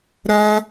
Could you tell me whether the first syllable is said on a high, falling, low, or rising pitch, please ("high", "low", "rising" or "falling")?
high